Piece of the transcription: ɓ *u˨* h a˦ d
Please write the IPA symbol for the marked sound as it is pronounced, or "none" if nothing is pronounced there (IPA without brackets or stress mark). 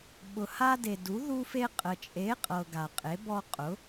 ʊ˨